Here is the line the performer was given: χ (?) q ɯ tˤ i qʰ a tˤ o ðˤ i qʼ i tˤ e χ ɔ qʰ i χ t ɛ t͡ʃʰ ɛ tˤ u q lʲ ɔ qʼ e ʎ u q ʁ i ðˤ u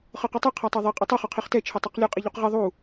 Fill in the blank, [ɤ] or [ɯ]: ɤ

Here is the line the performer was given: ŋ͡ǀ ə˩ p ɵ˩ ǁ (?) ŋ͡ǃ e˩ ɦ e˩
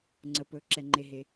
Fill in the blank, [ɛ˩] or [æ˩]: ɛ˩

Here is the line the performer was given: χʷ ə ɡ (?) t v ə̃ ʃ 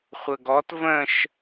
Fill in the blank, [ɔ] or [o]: ɔ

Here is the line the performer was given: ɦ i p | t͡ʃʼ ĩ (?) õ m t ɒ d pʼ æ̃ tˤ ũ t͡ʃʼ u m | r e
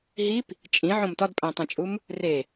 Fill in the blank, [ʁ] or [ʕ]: ʕ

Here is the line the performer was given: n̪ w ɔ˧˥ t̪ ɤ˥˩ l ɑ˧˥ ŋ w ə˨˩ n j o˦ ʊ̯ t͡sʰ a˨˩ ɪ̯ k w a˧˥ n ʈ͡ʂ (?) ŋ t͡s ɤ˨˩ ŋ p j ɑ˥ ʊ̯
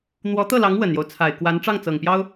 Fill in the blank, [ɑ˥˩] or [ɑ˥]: ɑ˥˩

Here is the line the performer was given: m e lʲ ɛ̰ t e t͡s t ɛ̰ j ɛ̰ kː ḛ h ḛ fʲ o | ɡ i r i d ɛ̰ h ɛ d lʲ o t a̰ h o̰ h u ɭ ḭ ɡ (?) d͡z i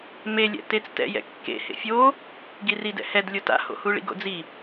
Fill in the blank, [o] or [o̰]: o̰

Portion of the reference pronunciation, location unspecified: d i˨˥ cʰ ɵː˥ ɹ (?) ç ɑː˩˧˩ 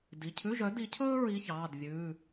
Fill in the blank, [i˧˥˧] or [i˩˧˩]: i˧˥˧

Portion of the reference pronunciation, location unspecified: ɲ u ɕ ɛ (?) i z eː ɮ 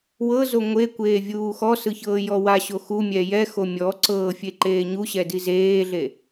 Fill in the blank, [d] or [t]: d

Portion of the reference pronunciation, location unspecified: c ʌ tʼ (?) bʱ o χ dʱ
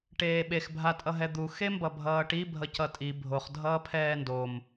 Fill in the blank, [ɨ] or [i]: i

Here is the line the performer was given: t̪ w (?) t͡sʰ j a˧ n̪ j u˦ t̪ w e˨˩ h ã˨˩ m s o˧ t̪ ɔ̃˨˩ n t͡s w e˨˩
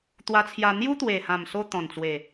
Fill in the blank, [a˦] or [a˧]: a˧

